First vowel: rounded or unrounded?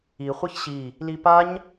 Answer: unrounded